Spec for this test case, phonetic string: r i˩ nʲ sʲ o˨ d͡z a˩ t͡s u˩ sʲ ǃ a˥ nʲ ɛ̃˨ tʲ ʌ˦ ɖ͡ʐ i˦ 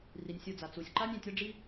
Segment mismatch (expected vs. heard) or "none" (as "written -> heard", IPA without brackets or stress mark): none